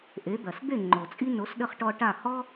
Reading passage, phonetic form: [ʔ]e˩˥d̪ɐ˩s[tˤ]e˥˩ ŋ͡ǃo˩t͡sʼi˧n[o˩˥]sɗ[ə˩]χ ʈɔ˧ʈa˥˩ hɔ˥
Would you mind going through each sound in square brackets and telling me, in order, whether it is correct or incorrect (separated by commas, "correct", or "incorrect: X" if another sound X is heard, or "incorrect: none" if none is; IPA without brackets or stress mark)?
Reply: correct, incorrect: d̪, correct, incorrect: ə˧